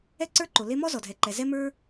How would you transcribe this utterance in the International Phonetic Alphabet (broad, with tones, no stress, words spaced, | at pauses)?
ɛ˥ǀə˞˥ǃo˩ le˥ mɔ˥zɔ˩dʱɛ˩ǃɛ˩ zɛ˥mə˞˥